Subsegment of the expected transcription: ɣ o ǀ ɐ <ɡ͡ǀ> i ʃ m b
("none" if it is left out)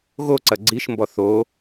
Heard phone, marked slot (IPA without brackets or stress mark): ɡ͡ǀ